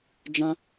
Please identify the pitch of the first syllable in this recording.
high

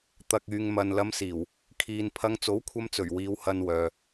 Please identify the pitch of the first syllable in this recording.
low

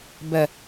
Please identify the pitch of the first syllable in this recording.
low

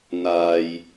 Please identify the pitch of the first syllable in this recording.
low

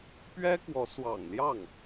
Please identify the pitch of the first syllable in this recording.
high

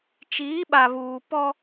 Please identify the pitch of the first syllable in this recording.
rising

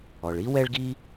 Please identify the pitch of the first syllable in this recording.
low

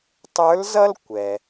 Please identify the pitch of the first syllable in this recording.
rising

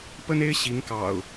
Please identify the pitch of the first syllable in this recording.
high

